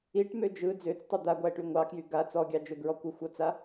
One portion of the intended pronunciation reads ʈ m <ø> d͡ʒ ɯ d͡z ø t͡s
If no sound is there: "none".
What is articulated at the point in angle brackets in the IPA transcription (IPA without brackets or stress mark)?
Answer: ø